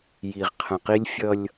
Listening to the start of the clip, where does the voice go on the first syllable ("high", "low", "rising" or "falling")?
low